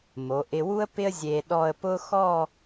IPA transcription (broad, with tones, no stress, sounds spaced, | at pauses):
m o˩˧ ʔ ɪ˧ w u˥ ə̯ p ɪ˥ ə̯ zʲ e˧ ɗ ɔ˥˧ ə̯ p ʊ˥ x ɔ˥˧